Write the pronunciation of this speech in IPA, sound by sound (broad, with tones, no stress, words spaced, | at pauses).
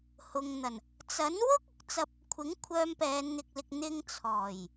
hʊ˨ŋn̪ɐ˨˩n | t͡sɐ˨˥n wʊ˥k̚ ʊ˨˥k̚t͡sɐ˥p̚ | kʷʰɪ˨˥ŋkʷʰœː˧mpɛː˨˧n n̪ɪ˨k̚lɪ˨k̚ n̪ɪ˧ŋt͡sʰɔː˨˩j